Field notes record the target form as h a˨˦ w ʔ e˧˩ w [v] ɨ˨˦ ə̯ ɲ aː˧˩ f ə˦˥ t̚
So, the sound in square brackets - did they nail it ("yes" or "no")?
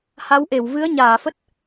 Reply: yes